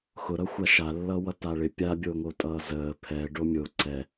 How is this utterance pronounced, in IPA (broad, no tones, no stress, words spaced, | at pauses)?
xʊɾʌxʷa ʃalːʌːwʌ taɭɪ pʲabʲoːŋotʼʌː zəː pʰɛ ɖomʲo ǀɛ